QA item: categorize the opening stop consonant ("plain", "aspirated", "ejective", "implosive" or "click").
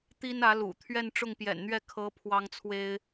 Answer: plain